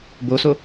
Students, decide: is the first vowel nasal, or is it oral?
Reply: oral